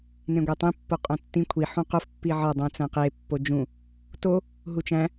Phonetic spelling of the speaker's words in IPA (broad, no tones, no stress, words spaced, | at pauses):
nẽɡʷetˤĩ pːoqʼõtːĩ kʷʰi ħũqof pːiʕɒ dˤũt͡sæ̃qe pːod͡ʒũ | to | ɦut͡ʃæ̃